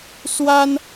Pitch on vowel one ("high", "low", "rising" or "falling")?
high